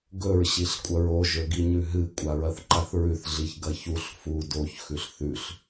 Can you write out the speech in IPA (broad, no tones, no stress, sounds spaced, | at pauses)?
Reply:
ɡ ɵ ɹ ɕ i ɬ kʷʼ ɐ ɹ o ʒ ɵ ɡ i ɲ ʉ ɦ ɨ kʷʼ a ɹ ɐ θ ǃ a θ ɹ ʉ θ ɮ i ç ɡ ɐ ç u ɬ f u d o ç x ʉ ɬ θ ʉ ɬ